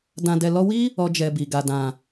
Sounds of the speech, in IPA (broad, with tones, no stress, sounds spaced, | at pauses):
d ã˧ d ɛ˧ l ɔ˦ w i˦ | ɔ˦ d͡ʒ ɛ˧ b i˨ ɡ a˨ d ã˨